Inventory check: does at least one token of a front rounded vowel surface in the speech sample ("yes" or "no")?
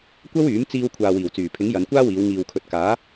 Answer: yes